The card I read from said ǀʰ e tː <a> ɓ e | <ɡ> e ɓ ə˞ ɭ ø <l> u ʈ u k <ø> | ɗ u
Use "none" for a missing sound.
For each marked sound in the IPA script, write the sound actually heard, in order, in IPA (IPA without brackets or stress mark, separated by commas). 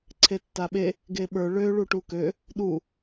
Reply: a, ɡ, ɭ, ø